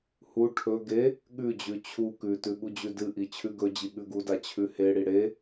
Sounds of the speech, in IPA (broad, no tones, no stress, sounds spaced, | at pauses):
h u ʈʰ ɵ ɡ e | ɠ ʉ d͡ʑ ʉ t͡ɕʰ u k ʉ t ʉ ɠ u d͡ʑ ʉ d ɨ ʔ i t͡ɕʰ ʉ ɡ ɵ d͡ʑ i ɠ ʉ ɡ u d a t͡ɕʰ ʉ h e ɽ i ɽ e